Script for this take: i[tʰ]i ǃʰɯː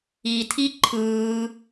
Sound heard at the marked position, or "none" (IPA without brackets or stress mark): tʰ